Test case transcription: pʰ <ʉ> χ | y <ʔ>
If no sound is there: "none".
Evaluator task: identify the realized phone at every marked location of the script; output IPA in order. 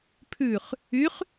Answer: ʉ, χ

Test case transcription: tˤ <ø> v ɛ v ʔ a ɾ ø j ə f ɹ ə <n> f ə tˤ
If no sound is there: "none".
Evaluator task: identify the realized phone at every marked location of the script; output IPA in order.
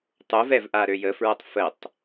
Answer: u, tˤ

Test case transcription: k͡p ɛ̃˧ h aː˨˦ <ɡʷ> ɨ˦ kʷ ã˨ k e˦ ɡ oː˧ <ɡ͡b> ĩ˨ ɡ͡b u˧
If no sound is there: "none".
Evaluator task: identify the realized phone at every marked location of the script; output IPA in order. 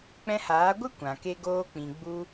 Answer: ɡʷ, k͡p

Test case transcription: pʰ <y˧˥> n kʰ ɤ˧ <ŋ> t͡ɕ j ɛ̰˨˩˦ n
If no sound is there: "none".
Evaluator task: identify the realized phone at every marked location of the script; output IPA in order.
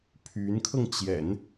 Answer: y˧˥, ŋ

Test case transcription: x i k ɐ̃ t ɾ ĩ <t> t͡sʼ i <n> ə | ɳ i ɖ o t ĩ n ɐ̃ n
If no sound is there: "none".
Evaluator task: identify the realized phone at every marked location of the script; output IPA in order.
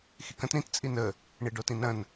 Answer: t, n

